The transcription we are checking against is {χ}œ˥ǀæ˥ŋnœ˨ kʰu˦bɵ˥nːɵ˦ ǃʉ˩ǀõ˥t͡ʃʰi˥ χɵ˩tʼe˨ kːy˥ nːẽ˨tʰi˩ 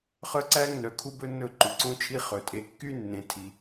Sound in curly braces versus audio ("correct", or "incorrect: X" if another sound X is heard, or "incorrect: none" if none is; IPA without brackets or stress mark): correct